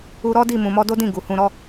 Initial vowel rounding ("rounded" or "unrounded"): rounded